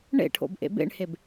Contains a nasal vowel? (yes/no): no